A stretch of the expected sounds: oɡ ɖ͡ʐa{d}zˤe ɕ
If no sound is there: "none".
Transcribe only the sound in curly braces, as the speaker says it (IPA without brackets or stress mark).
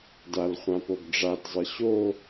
d